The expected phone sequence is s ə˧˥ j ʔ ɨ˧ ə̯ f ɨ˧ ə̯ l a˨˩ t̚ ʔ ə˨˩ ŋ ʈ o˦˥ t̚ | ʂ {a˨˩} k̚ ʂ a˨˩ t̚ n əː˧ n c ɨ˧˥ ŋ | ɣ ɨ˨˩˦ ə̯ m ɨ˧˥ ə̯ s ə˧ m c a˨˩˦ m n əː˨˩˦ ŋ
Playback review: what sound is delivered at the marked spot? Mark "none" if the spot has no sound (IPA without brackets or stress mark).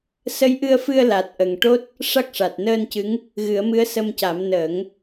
a˦˥